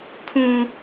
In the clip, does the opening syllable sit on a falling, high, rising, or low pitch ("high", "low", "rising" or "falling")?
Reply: high